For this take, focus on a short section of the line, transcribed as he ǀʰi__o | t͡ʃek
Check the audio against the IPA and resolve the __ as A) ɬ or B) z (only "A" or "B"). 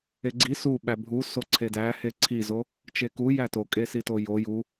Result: B